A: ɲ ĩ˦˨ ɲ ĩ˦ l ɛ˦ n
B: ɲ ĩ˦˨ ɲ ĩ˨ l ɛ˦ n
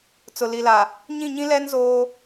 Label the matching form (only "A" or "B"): A